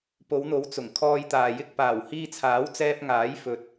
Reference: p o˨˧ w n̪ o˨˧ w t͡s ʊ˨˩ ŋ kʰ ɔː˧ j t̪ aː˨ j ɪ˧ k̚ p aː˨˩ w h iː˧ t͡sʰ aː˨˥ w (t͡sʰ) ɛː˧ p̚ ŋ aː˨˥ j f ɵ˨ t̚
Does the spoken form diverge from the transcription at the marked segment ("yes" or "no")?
yes